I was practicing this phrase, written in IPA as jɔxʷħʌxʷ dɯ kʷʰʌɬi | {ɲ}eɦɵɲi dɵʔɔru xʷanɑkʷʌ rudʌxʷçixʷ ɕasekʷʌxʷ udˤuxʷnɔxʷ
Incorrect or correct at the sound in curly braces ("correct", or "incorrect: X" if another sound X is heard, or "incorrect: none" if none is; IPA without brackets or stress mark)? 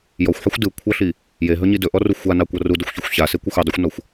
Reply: incorrect: j